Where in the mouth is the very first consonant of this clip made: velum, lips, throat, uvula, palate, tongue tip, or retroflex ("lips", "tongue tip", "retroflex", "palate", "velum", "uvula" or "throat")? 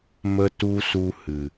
lips